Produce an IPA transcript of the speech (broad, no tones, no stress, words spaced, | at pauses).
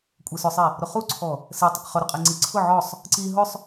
kʷʼesʊsˤi | ɾʊχuǀʰɔ | se tˤʊqχʊɾʊqʼe ŋ͡ǀiǀʰʊ ʕɔsˤ | ǀi ɦʊsˤ